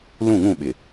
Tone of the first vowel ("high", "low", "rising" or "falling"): falling